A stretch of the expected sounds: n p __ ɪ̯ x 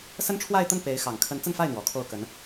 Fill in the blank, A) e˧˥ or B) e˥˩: A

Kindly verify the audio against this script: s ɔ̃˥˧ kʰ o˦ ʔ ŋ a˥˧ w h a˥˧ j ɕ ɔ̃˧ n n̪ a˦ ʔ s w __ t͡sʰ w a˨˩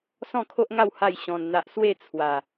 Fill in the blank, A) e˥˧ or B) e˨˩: A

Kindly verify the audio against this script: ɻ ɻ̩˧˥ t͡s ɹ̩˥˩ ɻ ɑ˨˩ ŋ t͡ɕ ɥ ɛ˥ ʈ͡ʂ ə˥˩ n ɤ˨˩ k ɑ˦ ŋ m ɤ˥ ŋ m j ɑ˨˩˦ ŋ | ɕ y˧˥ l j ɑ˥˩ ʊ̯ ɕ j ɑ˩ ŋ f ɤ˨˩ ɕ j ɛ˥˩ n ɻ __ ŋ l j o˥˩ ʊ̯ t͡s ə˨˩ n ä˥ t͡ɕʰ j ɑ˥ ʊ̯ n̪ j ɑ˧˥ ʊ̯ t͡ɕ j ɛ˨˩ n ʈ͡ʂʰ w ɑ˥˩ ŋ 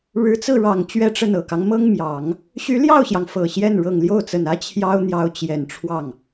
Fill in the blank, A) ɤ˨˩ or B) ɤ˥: A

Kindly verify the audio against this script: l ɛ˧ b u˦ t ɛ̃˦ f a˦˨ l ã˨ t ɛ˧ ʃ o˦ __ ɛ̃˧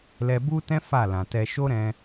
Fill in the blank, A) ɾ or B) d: A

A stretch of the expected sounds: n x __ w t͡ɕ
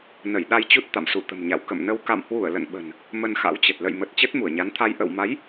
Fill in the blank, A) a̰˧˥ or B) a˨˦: A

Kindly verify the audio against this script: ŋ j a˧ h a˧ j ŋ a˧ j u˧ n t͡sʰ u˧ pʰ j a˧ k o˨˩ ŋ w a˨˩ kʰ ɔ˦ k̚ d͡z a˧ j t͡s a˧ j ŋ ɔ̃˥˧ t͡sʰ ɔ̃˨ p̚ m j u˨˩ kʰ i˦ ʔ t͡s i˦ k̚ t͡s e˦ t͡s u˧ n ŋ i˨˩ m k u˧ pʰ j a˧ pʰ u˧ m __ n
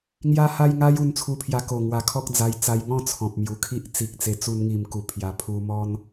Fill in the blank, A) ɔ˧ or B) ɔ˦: B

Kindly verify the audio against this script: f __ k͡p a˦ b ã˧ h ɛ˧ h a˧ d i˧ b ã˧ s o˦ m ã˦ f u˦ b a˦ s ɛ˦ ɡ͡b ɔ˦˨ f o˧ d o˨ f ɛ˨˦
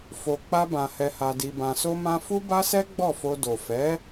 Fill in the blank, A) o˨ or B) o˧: B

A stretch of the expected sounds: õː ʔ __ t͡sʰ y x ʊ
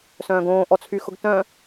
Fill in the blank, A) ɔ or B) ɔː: A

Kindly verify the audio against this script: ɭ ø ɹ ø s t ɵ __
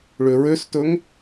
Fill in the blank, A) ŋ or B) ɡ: A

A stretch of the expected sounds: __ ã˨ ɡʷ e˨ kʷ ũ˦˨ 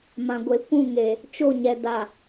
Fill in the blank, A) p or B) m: B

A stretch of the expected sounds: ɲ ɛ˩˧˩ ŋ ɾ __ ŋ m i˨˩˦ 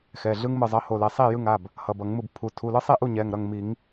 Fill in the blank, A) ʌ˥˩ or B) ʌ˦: A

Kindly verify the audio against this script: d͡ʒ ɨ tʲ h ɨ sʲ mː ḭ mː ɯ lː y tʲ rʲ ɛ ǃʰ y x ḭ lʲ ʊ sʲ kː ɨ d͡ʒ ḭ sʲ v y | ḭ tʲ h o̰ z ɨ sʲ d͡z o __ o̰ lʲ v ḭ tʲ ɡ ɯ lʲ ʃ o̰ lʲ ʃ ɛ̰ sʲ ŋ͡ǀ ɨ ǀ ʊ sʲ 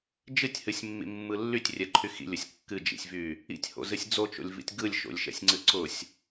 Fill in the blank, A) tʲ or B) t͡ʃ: B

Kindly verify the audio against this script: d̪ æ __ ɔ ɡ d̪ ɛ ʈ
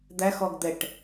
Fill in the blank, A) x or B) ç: A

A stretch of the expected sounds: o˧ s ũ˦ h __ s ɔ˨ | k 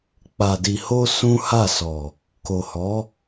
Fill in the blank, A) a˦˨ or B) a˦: A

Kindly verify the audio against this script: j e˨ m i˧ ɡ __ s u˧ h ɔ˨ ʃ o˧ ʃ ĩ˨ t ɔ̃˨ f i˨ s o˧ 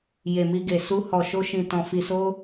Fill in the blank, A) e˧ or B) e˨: B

